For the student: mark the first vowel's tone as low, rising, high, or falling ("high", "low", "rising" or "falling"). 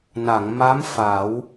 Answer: low